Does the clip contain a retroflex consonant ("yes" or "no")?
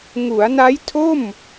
no